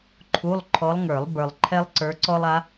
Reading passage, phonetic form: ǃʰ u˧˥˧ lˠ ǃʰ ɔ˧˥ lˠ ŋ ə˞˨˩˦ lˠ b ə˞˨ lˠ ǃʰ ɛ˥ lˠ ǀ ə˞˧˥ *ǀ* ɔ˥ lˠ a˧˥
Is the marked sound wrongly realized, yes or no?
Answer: no